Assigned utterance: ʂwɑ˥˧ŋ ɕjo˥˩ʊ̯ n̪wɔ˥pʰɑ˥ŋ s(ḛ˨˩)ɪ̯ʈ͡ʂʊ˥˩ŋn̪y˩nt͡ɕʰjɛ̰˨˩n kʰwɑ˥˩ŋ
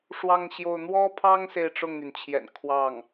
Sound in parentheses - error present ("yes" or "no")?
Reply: yes